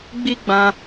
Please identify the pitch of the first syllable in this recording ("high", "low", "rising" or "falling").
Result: high